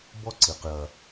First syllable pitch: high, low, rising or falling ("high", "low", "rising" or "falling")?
high